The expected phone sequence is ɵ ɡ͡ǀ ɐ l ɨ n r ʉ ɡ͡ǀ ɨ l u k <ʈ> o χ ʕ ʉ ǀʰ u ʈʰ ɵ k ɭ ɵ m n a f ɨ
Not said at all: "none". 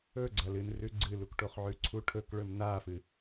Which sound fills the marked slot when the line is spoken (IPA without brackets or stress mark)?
ʈ